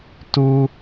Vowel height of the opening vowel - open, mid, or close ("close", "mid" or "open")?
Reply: close